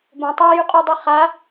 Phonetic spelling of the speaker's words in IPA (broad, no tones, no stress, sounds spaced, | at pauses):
b õ tˤ a j ʉ qʼ u dˤ i χ a